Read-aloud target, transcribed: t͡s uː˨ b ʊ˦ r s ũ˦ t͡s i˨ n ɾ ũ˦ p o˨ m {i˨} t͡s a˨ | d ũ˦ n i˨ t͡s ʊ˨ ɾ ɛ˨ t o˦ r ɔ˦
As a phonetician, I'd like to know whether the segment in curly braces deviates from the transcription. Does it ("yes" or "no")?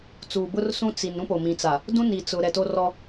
yes